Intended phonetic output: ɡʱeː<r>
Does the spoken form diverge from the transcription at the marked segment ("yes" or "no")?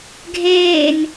yes